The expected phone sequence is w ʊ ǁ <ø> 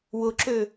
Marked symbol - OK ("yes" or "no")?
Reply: yes